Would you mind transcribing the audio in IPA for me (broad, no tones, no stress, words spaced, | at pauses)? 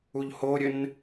uʎhoɾʲɘn